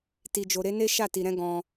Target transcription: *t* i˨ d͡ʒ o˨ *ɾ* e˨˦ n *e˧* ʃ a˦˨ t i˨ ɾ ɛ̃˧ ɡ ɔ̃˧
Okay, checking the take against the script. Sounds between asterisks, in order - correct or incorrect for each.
correct, correct, incorrect: e˦

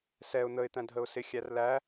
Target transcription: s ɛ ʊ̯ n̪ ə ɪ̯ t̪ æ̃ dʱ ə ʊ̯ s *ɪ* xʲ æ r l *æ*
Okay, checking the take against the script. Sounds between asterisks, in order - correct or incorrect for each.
correct, correct

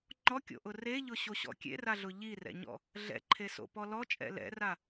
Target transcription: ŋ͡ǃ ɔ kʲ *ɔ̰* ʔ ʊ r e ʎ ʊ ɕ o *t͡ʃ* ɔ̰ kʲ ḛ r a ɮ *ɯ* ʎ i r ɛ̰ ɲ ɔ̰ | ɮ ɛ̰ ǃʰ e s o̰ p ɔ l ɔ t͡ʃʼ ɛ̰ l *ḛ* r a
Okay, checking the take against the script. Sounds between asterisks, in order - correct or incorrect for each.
incorrect: o̰, incorrect: ɕ, incorrect: ʊ, incorrect: ɛ̰

